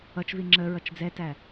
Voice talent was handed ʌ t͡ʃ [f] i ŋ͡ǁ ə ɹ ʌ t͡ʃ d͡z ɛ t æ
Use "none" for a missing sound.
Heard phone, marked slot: v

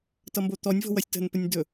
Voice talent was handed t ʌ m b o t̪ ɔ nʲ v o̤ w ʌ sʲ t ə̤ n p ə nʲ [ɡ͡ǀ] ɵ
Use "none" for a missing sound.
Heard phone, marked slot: d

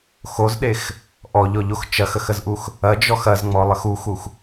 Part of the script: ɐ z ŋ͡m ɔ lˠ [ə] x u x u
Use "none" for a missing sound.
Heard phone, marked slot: ə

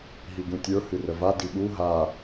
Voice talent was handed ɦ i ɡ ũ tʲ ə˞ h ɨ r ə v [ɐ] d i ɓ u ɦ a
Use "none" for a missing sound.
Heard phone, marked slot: a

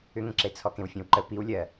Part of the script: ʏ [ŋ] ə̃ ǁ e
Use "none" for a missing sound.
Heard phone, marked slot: ŋ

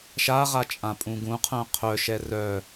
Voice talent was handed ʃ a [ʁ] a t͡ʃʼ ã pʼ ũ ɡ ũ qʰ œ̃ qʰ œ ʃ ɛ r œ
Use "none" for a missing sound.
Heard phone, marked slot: ʁ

